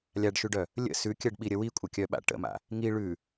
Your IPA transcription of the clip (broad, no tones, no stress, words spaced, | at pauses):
lʲaɖʃʉɖœ | lʲə̰ sʉkʲɜɖɓiɾʲə wikʷʼəkʲœɓa̰ ʈə̰ma̰ | ŋi ɭʉ